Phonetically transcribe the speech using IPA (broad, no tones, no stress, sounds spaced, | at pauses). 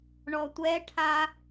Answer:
ɳ ɔ tʷ ɛ ʈʰ a